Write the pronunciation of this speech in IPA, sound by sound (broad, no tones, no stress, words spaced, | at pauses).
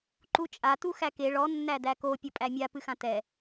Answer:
ǃut͡ʃʼa tuxæke ɭɔ nːædæko pʲopʼæmʲa pɨxãtɛ